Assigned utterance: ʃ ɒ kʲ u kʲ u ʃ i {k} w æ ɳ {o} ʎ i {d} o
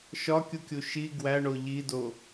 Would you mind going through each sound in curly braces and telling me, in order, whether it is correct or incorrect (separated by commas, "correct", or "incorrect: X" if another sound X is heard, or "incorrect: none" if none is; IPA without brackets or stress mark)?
incorrect: ɡ, correct, correct